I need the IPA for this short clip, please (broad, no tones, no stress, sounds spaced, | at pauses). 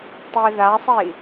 tˤ i ð a sˤ i